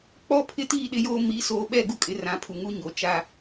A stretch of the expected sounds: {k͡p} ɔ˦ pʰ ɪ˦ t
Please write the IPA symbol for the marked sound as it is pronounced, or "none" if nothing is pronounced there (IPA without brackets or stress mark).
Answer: k͡p